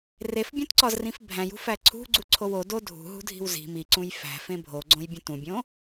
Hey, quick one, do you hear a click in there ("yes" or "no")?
yes